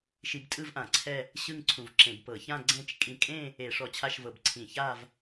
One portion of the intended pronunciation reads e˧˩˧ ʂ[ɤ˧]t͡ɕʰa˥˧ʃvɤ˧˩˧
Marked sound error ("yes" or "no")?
yes